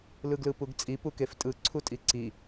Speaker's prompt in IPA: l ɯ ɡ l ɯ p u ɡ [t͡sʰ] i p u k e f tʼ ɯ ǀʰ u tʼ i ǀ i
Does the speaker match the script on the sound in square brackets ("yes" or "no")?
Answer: no